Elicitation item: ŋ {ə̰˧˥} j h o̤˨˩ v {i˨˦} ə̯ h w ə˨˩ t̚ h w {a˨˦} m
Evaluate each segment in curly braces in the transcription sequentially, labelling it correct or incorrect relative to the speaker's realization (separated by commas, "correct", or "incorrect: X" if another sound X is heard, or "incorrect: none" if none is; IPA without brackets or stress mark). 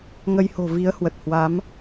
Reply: incorrect: ə˧, correct, correct